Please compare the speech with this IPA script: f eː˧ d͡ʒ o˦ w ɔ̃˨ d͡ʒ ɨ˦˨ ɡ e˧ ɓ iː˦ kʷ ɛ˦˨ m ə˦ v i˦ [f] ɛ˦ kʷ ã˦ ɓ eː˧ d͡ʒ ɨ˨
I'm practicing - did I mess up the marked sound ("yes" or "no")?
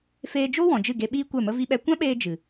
yes